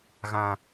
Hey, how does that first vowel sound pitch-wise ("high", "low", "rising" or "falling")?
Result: high